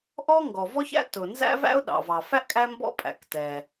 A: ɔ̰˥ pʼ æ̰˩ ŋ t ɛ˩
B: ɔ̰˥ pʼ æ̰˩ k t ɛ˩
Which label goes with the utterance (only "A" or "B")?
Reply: B